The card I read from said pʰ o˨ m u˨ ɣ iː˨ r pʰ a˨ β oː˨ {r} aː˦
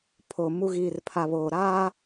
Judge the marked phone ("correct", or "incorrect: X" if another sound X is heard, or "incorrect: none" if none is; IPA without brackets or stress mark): incorrect: ɾ